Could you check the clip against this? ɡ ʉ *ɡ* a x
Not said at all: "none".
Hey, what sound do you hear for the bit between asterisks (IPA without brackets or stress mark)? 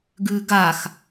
ɡ